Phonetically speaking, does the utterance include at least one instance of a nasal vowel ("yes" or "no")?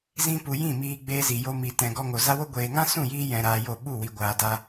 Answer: yes